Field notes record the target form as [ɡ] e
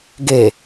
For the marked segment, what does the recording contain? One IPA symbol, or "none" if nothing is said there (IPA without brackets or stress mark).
ɡ